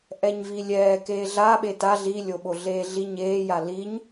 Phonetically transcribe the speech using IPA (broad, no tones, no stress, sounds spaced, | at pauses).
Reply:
ʔ ɛ ɲ v i lʲ ɛː k eː ɮ a ɓ e t a ɮ i lʲ o ɓ o ɮ eː ɮ i ɲ eː j a l i ɲ